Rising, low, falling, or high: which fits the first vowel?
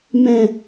low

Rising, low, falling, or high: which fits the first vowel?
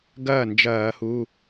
falling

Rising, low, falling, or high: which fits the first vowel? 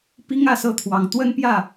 high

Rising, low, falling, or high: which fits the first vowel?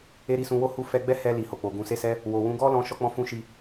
high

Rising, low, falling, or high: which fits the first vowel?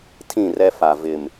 falling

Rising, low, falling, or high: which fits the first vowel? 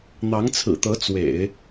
rising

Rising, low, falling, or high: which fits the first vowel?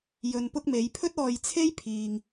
low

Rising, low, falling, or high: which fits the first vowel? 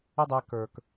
high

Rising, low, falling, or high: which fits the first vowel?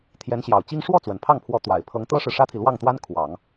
rising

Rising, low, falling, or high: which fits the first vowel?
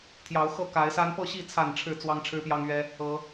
rising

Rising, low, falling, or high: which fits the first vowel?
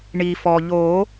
low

